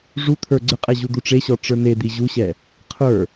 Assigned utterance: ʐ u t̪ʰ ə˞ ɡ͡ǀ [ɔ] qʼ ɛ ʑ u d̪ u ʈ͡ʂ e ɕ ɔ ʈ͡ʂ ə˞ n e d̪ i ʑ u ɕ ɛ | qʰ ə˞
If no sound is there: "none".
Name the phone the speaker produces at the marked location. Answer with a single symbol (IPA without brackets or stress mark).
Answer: ə